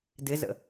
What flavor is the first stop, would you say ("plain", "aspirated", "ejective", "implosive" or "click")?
plain